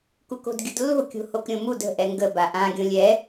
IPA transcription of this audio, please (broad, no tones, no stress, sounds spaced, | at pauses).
k u k o̤ d ɡʲ ʊ d lː o̤ kʲ o̤ h o k ɾʲ õ m u d ə̤ ʔ ɛ ŋ ɡ ə b a ʔ ã ɡʲ õ lʲ ɛ